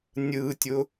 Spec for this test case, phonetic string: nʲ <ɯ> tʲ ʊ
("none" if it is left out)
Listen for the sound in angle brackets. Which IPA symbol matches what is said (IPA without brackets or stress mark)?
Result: ɯ